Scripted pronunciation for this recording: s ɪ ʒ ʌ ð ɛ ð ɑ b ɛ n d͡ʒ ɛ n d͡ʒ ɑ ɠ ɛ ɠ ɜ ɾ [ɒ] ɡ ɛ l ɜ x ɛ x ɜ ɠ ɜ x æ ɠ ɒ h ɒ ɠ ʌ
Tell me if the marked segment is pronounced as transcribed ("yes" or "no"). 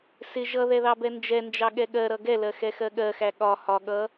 no